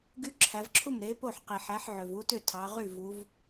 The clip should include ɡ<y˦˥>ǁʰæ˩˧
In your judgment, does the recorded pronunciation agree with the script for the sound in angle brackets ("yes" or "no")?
yes